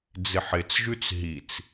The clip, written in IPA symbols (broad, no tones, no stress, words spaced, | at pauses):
d͡zɪħɪt͡sʒʉt͡s ɦit͡s